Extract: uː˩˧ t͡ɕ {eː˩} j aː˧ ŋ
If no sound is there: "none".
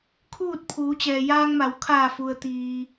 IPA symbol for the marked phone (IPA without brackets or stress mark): ɛː˩